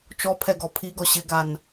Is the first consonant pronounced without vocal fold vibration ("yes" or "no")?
yes